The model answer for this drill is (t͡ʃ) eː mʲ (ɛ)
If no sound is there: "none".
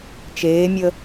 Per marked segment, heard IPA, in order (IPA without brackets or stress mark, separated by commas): t͡ʃ, ə